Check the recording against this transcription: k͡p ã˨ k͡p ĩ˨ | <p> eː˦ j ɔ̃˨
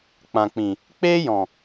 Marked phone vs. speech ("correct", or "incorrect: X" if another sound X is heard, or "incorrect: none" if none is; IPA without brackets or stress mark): incorrect: k͡p